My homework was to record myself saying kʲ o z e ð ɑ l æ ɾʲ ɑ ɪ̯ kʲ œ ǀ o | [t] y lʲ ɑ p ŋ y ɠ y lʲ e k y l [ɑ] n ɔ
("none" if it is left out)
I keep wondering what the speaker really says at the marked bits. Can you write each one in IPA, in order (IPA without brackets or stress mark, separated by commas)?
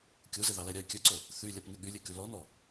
θ, ɔ